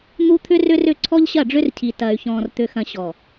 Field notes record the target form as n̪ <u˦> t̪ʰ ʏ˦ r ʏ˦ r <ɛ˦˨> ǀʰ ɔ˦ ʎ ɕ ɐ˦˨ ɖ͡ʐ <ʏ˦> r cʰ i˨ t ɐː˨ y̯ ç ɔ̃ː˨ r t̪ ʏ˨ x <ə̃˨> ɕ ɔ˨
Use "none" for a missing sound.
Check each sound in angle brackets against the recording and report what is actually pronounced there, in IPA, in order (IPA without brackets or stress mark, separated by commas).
u˦, ʏ˦˨, ʏ˦, ɐ̃˨